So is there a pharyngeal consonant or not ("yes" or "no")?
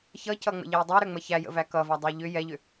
no